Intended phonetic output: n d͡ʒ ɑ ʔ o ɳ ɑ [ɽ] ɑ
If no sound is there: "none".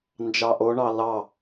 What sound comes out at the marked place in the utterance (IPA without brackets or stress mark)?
l